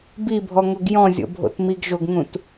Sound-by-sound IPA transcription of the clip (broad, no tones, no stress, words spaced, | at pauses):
bibʱɔŋoɡ jɔ̃zʲo̰bʱo̰t miɡʒoɡŋũt